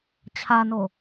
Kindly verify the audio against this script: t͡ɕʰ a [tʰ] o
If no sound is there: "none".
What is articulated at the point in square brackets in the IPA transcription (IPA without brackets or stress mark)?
n